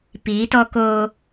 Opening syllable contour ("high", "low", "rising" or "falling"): rising